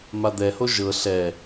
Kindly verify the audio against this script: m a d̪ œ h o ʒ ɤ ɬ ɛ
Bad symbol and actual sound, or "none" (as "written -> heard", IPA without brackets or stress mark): œ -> ɛ